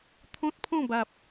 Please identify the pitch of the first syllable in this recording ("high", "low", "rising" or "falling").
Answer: high